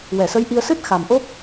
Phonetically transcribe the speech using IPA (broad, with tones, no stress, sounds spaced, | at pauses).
w ɛ˨˩˨ s ə˧˥ j ʔ i˧ ə̯ s ɨ˦˥ t̚ x a˨˩ m ʔ o˦˥ p̚